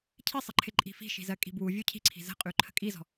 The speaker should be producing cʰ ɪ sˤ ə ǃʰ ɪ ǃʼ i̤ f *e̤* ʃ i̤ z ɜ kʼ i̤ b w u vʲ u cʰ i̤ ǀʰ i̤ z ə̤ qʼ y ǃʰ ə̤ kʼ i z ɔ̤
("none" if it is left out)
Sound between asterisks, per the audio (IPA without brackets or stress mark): i̤